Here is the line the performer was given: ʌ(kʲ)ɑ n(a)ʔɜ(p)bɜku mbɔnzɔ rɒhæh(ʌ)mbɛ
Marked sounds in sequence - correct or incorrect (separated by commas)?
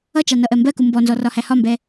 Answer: incorrect, incorrect, incorrect, incorrect